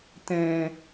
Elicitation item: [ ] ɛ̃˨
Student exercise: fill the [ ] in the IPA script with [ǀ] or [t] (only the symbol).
t